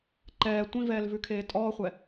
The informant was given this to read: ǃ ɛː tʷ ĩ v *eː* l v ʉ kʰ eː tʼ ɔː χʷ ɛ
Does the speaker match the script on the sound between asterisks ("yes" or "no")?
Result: no